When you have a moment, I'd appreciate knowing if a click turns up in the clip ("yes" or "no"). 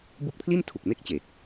no